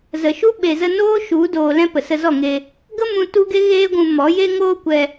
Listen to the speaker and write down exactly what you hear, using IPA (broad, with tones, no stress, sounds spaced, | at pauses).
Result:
z ə˨ ʃ u˦ ɓ e˨ z ə˧ n oː˦ ʃ u˨˦ d oː˧ l ɛ̃˦ p ə˨ s ə˧ z ɔ˦˨ ŋ e˧ | ɡ ə˦ m ũ˧ t u˦ ɡ e˦ ɣ eː˦ ɡʷ ũ˧ m ɔ˨˦ j e˦ ŋ oː˦ kʷ ɛ˧